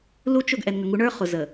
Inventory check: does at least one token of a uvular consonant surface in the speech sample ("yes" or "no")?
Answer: yes